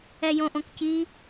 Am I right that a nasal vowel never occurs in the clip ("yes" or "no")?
no